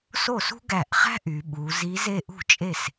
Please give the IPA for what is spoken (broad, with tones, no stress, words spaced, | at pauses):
so˥˩sṳ˥ɡæ˧˩ʔχæ̤˥ ʔy˩˧ɓu˩˧ zi˧˥ze˥˧ ʔṳ˥˩t͡ʃʼe˥˩s